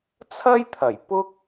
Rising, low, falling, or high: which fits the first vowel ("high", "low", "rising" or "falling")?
high